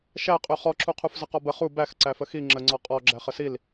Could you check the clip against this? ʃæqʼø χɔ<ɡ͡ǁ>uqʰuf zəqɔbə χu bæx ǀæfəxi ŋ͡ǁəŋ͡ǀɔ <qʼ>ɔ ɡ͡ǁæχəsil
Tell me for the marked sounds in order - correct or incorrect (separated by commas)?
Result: incorrect, correct